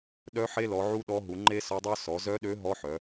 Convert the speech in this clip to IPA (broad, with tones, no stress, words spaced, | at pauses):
ɗœ˧˥ ħe˧˥lɔ˩˧ʕu˧˥ ɗɔ˧˥ ɦu˩˧ŋ͡ǃe˥sɔ˧˥dˤœ˥ sɔ˩˧zœ˧˥ɗø˧˥ ɦɔ˧˥ħœ˩˧